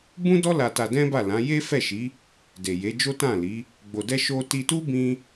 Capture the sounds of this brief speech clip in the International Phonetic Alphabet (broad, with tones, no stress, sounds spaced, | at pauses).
b ũ˦ d ɔ˦ l a˧ t a˧ d ɛ̃˦ b a˦˨ l ã˨˦ j e˦ f ɛ˦˨ ʃ i˨˦ | d e˨ j e˨˦ d͡ʒ o˦ t ã˦˨ l i˨˦ | ɡ͡b o˧ d ɛ˦ ʃ o˦ t i˧ t u˦ b ĩ˦